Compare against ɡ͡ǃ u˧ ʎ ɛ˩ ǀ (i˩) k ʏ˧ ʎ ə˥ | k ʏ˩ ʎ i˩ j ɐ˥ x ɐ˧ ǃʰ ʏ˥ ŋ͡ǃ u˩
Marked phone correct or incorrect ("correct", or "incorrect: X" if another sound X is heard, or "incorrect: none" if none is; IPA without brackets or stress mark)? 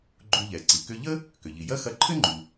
correct